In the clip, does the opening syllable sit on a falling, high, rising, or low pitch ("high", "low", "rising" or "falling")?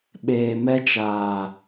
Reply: low